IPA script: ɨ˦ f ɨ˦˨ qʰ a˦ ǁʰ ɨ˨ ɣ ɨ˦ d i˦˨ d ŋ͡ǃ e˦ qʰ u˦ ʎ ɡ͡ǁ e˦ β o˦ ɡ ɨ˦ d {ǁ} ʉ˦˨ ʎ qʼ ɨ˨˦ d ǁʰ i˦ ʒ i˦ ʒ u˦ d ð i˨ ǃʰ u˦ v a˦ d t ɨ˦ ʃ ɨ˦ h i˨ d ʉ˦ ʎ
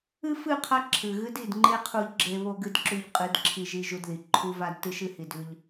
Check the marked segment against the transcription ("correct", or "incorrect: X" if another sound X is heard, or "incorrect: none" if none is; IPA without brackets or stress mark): correct